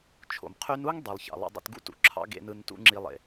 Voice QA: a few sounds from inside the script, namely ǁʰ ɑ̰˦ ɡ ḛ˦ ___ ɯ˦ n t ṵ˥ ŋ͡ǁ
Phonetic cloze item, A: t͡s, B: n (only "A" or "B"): B